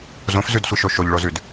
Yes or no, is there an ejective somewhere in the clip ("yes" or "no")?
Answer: no